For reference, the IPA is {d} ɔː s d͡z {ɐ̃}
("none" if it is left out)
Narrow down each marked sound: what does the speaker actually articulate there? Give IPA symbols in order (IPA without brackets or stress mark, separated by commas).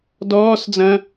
d, ɐ̃